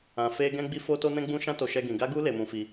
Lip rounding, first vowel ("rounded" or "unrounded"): unrounded